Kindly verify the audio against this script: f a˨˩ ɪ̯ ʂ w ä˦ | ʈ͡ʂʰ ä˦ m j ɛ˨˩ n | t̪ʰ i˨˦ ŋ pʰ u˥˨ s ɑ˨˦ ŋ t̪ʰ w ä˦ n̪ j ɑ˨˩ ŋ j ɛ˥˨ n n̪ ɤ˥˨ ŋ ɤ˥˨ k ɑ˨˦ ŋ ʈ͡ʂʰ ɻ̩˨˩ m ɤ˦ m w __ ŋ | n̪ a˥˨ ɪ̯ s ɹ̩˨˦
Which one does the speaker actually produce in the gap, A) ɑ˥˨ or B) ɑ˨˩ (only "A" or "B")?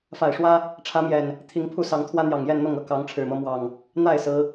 B